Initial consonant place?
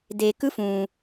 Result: alveolar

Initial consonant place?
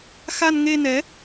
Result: velar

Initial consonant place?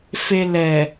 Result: labial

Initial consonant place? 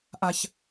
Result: glottal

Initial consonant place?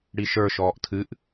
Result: retroflex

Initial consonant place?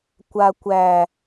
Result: velar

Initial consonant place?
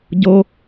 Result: palatal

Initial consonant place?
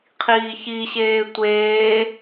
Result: uvular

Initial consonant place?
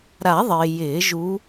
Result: alveolar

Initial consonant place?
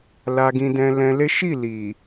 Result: alveolar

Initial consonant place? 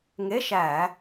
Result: velar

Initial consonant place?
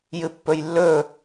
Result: palatal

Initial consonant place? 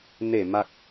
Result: alveolar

